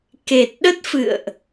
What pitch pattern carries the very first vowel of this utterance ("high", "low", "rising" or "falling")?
low